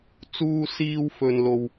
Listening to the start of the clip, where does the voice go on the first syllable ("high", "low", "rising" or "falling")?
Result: high